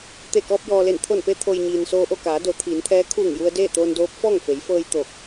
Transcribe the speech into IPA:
t̪e˧˩ kɔː˧p̚jɔː˩le˧˩n t̪ʰo˧˩npe˧t̪ʰo˩j ɲiː˩nsoː˧ʔo˥˨ kaː˩˧do˩˧t̪ʰiː˩˧nt̪ʰɛː˧˥ kʰuː˧˩ŋju˧ə̯ deː˥˨t̪oː˧ndoː˧˥p̚ fɔː˥˨ŋfe˩˧jfɤː˧j t̪o˧˩k̚

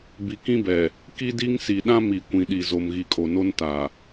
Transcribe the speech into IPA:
bi˨kĩ˦bɛ˨ | ki˦di˦ŋ si˨ɗã˦ mi˨kʷĩ˨ɗi˨zo˨m ɣi˨kʼo˨no˦n ta˨

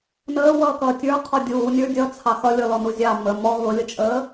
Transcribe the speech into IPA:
nəːwʌːkʌː tʲə˞qʰɔ dʲuːnʲə˞ dʲʌt͡sʰɑ xʌlʲɔlɔnu zʲɑ mə mɔ ɣʊlʲət͡ʃʼəː

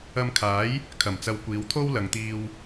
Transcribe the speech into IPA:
ɐ˧mkʰaː˨˥j | kʰɐ˨˩mt͡sɐ˧w kʷiː˨˧wt̪ʰo˥w lɐ˨ŋt̪iː˧w

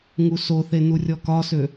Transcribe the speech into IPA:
ŋusoθe nurʲɔkɒsø

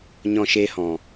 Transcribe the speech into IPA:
ɲɔ̃˧ʃeː˧hɔ̃˨

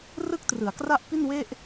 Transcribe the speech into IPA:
rɯ˥˩k̚trɯ˩˦a̯kra˥˩ʔ pi˥˩nwe˥˩ʔ

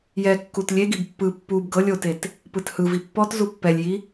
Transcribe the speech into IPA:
jɛkːut lʲeɡib pːɯ pːub ɡɤlʲ otet | pɯthɯvi pːɔtzu pːɛlʲji

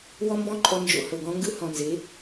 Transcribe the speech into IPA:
wɔ˦mbɔ̃˦ǃʼɔ˧ nd͡ʒo̰˧hɤ˨ɡɔ̃˦ ŋɡɯ˦hɔ̃˨nze˨˦

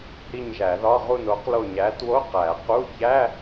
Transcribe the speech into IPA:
hi˦˨ɲʒæ˨˩˦ðɒ˧˥˧ ʁu˦˨n o˨˥qlo˦˨ɲæ˨˥ two˧˥˧ qæ˨˩˦qu˧˥˧ çæ˧˥˧

